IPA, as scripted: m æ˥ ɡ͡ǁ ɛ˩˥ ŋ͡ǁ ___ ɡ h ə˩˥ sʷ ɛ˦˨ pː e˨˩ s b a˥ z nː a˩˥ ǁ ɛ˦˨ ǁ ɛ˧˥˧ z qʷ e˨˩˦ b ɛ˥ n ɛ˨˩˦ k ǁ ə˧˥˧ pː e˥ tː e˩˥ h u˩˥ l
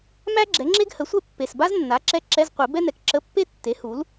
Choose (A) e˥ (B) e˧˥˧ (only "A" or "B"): A